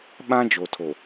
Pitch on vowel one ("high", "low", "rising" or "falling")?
high